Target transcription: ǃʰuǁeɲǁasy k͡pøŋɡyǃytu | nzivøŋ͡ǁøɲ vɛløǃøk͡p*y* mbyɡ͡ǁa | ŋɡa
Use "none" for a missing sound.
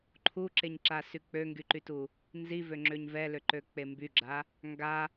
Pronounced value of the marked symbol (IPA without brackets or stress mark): e